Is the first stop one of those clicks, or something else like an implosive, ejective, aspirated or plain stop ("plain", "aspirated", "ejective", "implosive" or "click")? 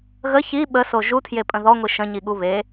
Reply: implosive